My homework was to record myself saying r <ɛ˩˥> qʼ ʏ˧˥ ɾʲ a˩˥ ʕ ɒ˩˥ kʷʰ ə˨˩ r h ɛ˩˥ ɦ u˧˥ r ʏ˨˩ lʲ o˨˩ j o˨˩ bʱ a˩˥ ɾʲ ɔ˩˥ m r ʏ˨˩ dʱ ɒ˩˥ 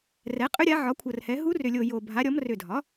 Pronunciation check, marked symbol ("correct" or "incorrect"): correct